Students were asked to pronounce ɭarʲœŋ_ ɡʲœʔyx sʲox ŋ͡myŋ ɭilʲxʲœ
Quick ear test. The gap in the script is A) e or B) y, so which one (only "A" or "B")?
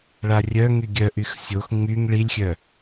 B